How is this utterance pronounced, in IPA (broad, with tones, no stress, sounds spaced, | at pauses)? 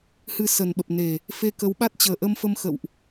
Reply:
h ɨ˧ s ə˨˩ n ɓ ə˨˩ p̚ n e˨˩ | f e˧ k ə˨˦ w ɓ a˦˥ t̚ t͡ɕ əː˨˩ ʔ ə˧ m f ə˧ m x ə̰˧˨ w ʔ